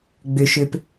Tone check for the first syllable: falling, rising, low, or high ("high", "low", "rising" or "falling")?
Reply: low